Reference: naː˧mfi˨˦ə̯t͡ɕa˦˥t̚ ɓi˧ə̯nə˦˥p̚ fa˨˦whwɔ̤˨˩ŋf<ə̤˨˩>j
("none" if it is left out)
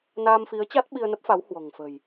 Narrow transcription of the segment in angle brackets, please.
ə̤˨˩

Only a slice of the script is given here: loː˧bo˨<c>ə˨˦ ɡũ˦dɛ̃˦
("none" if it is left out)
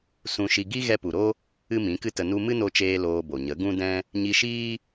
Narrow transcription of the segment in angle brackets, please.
ɲ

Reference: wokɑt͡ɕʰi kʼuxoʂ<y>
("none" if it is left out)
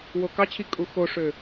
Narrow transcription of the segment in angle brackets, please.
ø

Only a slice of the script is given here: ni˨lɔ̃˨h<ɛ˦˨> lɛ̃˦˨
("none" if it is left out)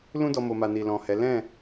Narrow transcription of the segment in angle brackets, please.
ɛ˨˦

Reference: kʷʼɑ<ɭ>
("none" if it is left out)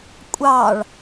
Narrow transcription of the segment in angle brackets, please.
ɭ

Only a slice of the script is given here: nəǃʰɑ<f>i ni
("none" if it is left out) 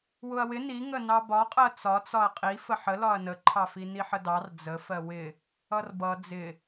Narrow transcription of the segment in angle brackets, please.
f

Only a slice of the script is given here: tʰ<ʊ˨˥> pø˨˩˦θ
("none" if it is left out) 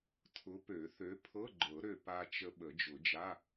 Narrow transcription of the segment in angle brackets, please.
ʊ˨˥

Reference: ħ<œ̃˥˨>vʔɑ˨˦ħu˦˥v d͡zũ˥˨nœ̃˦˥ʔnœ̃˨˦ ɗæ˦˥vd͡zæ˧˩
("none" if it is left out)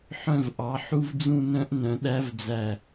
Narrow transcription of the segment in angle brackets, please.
œ̃˥˨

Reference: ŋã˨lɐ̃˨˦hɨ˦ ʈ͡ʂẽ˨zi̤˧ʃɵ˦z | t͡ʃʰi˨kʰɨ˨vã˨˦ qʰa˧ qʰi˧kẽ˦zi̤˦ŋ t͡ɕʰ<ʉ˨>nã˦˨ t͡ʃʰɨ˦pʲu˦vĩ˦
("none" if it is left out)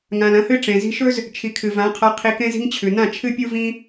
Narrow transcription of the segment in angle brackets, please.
ʉ˨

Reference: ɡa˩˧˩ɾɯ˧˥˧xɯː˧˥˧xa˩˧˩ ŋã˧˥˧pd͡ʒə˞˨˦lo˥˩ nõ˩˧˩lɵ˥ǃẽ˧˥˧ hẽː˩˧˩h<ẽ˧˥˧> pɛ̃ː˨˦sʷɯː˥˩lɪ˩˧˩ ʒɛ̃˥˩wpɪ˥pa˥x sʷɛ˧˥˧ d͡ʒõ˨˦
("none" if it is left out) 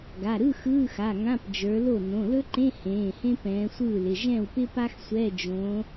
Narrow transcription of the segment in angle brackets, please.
ẽ˥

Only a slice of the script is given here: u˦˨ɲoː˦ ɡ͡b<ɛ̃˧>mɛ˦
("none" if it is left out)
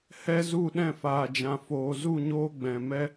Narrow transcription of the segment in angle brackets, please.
ɛ̃˨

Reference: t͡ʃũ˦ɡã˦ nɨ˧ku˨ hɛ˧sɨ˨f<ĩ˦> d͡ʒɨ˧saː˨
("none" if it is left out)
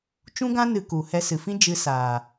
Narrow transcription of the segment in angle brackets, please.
ĩ˦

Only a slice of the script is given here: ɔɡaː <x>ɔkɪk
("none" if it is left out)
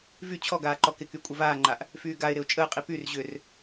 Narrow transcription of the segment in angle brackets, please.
ǃ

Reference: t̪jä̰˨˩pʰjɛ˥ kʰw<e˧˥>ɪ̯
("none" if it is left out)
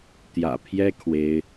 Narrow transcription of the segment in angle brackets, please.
e˥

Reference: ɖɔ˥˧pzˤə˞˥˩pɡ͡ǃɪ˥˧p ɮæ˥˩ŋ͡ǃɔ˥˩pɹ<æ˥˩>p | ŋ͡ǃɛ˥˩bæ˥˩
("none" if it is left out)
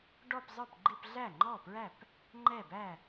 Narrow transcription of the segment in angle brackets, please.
æ˥˩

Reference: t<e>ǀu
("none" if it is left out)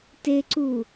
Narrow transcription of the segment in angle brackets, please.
e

